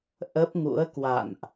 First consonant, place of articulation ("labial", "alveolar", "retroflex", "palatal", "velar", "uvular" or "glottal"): glottal